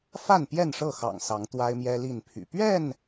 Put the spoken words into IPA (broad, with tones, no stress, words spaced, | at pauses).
fa˥˨npjɛ˥˨nʂɤ˥˨xɑ̰˨˩ŋ sɑ˨˦ŋt̪wa˦ɪ̯mjɛ˦ li˥˨npʰy̰˨˩ pɥɛ˥˨n